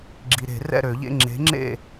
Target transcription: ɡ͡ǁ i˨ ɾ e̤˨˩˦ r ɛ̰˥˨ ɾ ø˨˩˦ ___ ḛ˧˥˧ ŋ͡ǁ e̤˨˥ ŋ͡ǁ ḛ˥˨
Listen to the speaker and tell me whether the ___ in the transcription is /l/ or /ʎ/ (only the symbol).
ʎ